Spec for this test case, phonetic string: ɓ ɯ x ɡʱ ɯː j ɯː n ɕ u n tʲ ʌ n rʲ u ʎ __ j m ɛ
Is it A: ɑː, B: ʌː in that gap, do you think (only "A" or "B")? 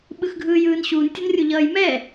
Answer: B